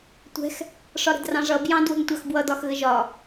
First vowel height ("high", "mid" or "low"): mid